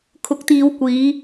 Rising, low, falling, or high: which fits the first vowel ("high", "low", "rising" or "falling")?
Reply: rising